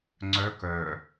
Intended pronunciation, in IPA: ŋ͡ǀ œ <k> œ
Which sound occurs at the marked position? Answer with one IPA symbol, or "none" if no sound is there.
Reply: k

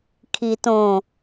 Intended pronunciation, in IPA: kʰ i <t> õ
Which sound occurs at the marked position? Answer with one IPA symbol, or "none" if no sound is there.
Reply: t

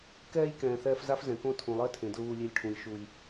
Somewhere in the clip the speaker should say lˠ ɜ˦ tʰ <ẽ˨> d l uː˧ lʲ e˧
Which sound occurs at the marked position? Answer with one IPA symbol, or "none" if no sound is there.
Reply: ẽ˨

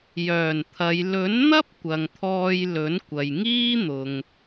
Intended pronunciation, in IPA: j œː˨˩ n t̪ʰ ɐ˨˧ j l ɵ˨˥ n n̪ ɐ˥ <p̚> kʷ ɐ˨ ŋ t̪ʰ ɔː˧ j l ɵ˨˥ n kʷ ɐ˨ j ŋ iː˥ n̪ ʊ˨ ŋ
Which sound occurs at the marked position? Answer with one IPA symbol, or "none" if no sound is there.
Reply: p̚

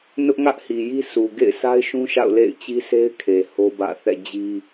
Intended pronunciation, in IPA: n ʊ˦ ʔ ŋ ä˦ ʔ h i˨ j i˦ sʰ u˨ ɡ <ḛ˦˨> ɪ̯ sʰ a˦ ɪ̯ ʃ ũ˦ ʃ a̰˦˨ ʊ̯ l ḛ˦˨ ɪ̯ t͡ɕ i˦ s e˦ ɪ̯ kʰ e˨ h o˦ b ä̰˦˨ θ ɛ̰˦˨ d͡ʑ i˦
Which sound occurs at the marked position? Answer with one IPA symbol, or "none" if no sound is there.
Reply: ḛ˦˨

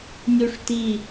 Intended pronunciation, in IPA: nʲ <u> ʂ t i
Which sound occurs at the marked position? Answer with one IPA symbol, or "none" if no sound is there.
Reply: u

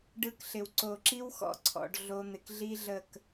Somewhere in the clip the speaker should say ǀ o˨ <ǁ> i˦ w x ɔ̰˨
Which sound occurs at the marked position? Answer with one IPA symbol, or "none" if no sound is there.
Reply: ǁ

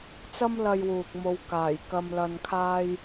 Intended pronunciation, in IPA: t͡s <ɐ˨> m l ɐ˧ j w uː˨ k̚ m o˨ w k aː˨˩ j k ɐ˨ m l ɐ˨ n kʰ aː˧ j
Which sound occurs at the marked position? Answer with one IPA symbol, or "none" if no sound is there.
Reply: ɐ˥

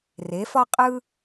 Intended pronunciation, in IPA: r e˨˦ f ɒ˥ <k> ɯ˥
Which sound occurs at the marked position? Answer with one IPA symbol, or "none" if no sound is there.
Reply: qʼ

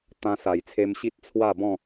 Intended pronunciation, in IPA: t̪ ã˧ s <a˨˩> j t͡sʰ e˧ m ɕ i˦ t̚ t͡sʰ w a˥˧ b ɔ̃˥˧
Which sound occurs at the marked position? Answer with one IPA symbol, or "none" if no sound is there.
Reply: a˨˩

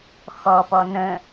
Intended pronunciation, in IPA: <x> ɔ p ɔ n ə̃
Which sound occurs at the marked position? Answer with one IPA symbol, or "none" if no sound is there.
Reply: x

